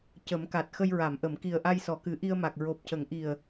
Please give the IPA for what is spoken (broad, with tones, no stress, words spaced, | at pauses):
cə˨˩˦mka˨˩t̚ xə˧jɹa˨˩˨mʔə˨˩˨m ki˨˩ə̯ʔa˧j sɔ˨˩˨kɨ˨˩˦ʔi˧ə̯ma˨˩k̚ ɹo˨˩p̚cə˨˩˦ŋʔi˨˩ə̯